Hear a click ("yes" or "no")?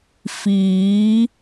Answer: no